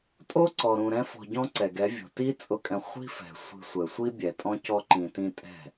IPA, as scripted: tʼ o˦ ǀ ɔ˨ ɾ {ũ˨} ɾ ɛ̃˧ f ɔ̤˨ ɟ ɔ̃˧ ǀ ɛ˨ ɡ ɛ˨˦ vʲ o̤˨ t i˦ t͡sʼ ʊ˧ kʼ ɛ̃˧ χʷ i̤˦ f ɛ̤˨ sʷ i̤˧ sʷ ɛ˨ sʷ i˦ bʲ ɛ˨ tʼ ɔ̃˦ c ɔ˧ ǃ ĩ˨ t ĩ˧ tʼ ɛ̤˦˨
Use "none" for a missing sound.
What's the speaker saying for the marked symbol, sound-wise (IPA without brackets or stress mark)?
ũ˨